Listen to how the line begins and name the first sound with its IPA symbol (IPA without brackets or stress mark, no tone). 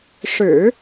ʂ